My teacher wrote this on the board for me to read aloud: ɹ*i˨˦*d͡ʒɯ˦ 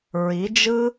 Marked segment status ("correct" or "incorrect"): correct